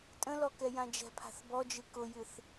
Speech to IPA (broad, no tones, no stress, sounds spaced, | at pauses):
tʼ ə̃ l ɔ k ɛ j ã d͡ʒ ɛ̤ pʰ a̤ θ b ɔ d͡ʒ ɨ k ʊ j ɨ θ